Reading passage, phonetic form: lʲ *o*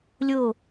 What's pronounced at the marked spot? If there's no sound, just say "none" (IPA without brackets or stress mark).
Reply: o